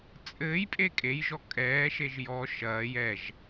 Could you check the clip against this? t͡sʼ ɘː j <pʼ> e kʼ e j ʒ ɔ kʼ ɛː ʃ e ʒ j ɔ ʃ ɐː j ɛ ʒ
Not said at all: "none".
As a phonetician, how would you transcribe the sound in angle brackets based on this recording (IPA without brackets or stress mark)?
pʼ